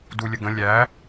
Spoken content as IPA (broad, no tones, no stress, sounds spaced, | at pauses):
d u lʲ ə ɡ ə̃ lʲ æ